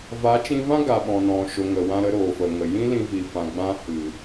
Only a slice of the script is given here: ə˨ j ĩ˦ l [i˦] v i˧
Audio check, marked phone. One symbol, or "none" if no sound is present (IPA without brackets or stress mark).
ĩ˦